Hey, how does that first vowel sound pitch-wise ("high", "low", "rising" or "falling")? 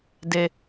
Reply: low